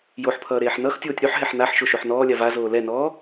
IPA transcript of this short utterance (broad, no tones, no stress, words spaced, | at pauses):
joħpʰʌː ɾeːħnʌxtʲoːtʲ ɾʉħɦɛħ naħʃo ʃoħnɔːlʲa vazoː lɛnɔː